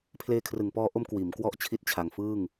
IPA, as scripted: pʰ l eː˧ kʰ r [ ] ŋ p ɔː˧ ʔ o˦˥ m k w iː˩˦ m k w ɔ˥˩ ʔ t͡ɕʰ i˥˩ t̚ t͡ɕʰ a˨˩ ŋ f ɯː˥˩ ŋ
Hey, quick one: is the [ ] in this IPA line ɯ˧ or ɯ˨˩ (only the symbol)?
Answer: ɯ˨˩